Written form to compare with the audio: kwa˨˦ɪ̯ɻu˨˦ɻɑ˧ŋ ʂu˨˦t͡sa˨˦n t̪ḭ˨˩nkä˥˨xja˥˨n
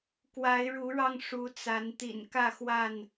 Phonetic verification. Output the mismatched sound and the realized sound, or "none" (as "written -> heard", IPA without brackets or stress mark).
j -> w